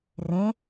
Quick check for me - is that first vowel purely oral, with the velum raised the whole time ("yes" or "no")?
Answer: no